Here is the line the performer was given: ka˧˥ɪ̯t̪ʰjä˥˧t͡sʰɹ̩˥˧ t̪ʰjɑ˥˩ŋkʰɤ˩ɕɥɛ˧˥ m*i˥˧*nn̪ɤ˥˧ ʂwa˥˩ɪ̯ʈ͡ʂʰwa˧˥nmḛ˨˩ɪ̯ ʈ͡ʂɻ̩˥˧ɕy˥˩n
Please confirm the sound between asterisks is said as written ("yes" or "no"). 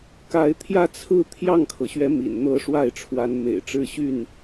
no